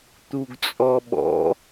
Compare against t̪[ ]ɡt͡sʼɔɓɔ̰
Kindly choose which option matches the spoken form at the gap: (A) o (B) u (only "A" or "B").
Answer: B